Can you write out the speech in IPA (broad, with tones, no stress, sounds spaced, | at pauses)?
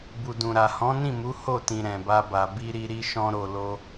b u˨ d ũ˨ ɾ a˨ h ɔ̃˨˦ n ĩ˦˨ m u˨˦ h o˦˨ t ĩ˨ ɾ ɛ̃˨ b a˧ b a˨ b i˧ ɾ i˧ ɾ i˦ ʃ ɔ̃˦ ɾ o˧ l o˦